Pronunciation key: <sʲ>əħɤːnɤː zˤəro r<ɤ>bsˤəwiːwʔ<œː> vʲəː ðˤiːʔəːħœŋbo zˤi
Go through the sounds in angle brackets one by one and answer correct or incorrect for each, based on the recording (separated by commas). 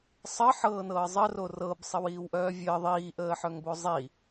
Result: incorrect, correct, correct